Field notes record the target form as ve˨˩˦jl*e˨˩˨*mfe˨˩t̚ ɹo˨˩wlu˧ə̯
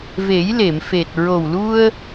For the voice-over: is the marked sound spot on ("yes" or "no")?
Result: yes